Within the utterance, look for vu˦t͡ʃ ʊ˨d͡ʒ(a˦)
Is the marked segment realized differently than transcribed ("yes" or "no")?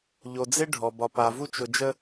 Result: yes